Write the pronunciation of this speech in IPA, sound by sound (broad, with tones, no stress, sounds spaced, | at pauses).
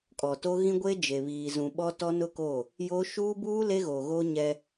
kʼ ɔ˨ t o˦ ɣ ĩ˦ ɡʷ e˦ d͡ʒ e˨ β iː˨ z ũ˨ ɓ ɔ˦ t ɔ˦ n ʊ˦ k o˦˨ | j o˦ ʃ uː˦ b uː˦ l e˦ ɣ o˨ ɣ o˦ ɲ ɛ˦